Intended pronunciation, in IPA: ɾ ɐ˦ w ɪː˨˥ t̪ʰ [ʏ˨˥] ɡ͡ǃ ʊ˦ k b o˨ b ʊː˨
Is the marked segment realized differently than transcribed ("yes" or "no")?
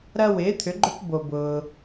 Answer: no